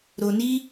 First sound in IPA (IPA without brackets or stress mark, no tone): ɾ